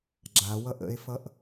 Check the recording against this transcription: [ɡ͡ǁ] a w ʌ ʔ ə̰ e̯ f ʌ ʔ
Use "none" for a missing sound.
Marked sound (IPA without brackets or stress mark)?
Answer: ɡ͡ǁ